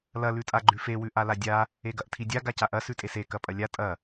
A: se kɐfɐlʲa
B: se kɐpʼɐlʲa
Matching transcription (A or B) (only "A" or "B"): B